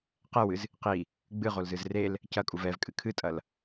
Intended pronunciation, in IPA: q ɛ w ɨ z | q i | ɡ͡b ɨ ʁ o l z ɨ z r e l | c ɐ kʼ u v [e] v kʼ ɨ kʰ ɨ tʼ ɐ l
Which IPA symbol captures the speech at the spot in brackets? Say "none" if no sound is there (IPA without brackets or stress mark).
ɛ